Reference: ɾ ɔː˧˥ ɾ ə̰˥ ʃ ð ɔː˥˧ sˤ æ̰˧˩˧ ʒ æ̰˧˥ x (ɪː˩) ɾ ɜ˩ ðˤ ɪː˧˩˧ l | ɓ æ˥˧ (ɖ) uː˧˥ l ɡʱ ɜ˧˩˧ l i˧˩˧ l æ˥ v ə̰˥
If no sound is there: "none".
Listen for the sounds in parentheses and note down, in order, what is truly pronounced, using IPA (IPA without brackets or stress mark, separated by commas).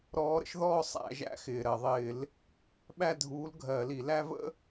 ɪː˩, dʱ